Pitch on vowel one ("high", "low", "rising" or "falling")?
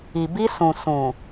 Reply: low